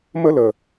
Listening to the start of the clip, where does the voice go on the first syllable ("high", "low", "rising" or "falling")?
high